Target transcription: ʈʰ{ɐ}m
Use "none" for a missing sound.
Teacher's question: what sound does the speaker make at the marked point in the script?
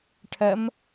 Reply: ɐ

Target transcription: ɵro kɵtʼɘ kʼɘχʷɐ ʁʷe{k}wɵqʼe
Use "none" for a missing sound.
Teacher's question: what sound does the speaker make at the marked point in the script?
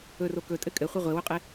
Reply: none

